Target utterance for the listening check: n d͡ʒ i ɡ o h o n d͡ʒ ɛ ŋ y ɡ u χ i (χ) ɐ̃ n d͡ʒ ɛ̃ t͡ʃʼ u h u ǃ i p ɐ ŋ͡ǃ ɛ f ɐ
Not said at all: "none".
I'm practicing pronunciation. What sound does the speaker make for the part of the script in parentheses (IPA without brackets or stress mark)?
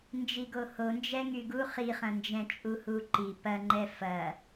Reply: χ